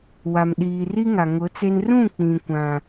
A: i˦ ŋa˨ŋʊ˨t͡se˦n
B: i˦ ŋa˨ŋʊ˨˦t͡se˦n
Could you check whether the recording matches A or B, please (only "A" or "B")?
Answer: B